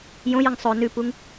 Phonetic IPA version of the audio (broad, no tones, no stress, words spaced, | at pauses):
jõjəŋ sˤɵ nʉpuŋ